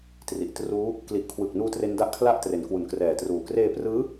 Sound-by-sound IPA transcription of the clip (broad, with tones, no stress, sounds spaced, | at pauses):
t r i˨˩ ʔ t r uː˦˥ | k l i˨˩ ʔ kʰ w ɯ˨˩ k̚ n uː˧ t r e˦˥ n d a˦˥ ʔ kʰ l a˥˩ ʔ t r e˩˦ n k w u˨˩ n k r ɛː˨˩ t r uː˨˩ k r eː˧ p r ɯː˦˥